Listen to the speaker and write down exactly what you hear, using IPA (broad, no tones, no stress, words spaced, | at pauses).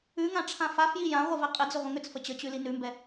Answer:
ʉŋã ʈ͡ʂʰãfafji jã ʁʷivɛqʼɪd͡zʏ ʁʷə̃ŋʏt͡sfə t͡ɕət͡ɕʉ linʉmbɛ